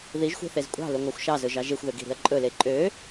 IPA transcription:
ðiʒxʷe̤θez kʷʼɑ̤lɵŋʷɑxʷ ʃɑzɵʒɑ ʒexʷðøɡi̤ɾi̤ɐ̯ ǃʼɵle ǃʼø

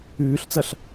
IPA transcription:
ʉːɬt͡sɐɬ

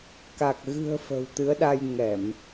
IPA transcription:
ka˨˩k̚ ɣɨ̤˨˩ə̯ fə̤˨˩wt̪ɨ˨˦ə̯ɗa˧j ŋɛ˧˩˨m

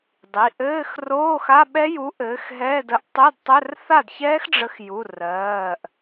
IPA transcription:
dˤi˩˧˩ʔɘː˧˥˧x roː˧˥˧xa˧˥˧ɓɛ˦˥ju˨˥ ʔɘː˨˥xɦɛː˧˥˧də˦˥ʔ tˤɘ˧˥˧dtˤɘ˧˥˧r θa˥˩dçɛː˦˥xɖ͡ʐə˨˥xju˩˧˩ rɜː˩˧˩ʔ

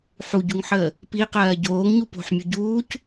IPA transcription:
ħuɟuŋħəː | piqɜː ɟoːŋɲu po̤ħmʲu ɟuːc

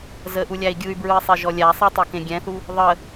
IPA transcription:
zəʔulʲæi̯ ɡʲɯy̯bɹɯi̯sˤeʒɔ lʲæsˤɯtˤokẽ ɡʲɛ̃θu | ðˤə

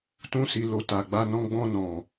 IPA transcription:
tũ˧si˨lo˨ ta˨ɡ͡ba˧nɔ̃˧ɡ͡bɔ̃˧ nɔ̃˨

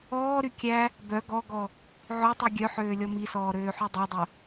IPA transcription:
ɔːɾy kʲæ | bœ ɡɔɡɔ | ʕɵtˤy ɡʲœħøː lʲɔmisɔː ɾøːħydˤedˤɵ

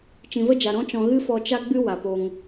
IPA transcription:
t͡ʃĩ˨və˦d͡ʒa˨ ɾɔ̃˦t͡ʃɔ̃˧ ɣɨ˦fɔ˧t͡ʃa˦ ɡ͡bɨ˦ wa˨po˧ŋ

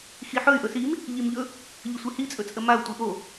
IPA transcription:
xiħɵy̯ ʔɵsim | ʎimʎɵ | ʎəsʷihi t͡sʼɵt͡sʼəmau̯ tʷiʔo

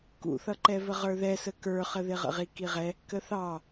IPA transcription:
kṵθʌǃɛvə ʁə˞ðɛsə kə˞χəðɪ ʁə̰ʁikiʁɛ | kəθɑ

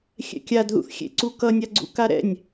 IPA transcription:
xʲɛ̰kʲadðṵθxʲḛ ǀukʌnʲaɡ͡ǀṵ kaɾɛ̰nʲ

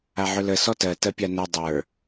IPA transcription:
aʕɵlə sɔtɜ tɜpʲanɜ dˤə˞

